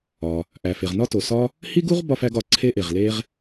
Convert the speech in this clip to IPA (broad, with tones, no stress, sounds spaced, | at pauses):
ɒ˩ | ʔ æ˩ f e˩ ʁ n ɒ˥ t o˩ s ɒ˥ | h i˥ ɡ u˥ ʁ b ɒ˥ f æ˥ ɡ ɒ˩ ǀʰ e˥ ʔ e˩ ʁ l e˥ ʁ